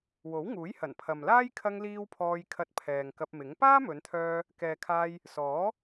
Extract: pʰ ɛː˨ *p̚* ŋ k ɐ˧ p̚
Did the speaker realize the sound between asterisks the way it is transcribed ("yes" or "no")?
no